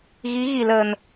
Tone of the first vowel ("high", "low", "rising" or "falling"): rising